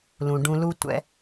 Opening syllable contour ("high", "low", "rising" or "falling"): low